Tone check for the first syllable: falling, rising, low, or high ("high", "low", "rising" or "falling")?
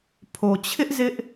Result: low